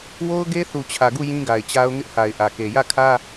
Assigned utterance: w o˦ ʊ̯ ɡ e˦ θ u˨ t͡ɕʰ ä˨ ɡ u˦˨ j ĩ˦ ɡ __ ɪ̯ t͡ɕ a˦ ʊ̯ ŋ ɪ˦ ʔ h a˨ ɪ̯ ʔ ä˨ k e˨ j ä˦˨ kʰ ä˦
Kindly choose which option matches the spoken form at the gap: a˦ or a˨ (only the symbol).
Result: a˨